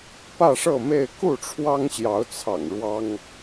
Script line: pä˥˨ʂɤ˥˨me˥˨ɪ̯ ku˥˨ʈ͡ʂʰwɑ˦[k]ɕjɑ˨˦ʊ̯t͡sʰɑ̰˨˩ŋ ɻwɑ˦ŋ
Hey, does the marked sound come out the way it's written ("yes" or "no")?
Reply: no